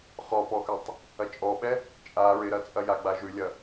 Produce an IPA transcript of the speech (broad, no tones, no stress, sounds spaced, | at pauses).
χ ɔ p ɔ x ʉ tˤ | ɐ t͡ʃʼ ɔ ɓ ɛ | t͡ʃʼ a ɹ ɪ ɾ ɐ t͡sʼ ɐ j a ɡ͡b a ʒ ʉ lʲ ɐ